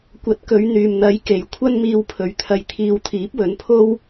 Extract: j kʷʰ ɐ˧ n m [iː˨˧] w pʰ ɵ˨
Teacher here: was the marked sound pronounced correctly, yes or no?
no